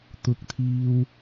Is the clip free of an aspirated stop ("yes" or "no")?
no